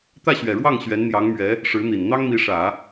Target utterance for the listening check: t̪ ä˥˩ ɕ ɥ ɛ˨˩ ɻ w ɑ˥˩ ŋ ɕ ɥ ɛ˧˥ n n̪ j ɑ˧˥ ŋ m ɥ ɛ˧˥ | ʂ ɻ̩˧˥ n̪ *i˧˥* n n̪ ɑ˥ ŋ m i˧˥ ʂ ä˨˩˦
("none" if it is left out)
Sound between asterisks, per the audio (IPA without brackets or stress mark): i˨˩